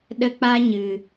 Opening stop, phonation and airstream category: implosive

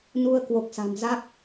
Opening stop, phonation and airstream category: plain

